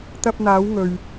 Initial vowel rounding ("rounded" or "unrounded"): unrounded